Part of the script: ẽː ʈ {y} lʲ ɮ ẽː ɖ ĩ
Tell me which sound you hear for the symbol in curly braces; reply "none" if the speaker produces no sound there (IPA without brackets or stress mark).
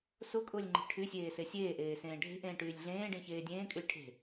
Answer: yː